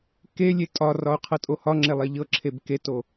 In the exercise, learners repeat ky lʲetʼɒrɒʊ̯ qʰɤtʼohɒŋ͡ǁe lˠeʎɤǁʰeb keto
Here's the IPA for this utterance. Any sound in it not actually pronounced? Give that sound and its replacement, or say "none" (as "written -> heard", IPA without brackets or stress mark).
y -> e